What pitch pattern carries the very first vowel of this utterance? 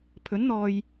rising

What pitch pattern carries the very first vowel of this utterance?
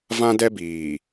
high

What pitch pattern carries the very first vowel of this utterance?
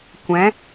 rising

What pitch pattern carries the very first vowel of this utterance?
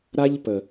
high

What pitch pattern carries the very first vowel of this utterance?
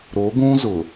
rising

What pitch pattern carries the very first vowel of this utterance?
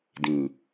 low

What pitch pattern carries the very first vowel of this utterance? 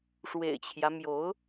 low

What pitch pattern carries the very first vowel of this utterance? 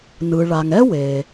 low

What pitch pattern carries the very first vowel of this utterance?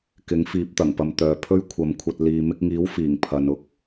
rising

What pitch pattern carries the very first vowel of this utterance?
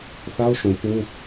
high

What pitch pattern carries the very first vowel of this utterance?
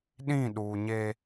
falling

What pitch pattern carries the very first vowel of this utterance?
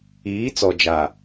rising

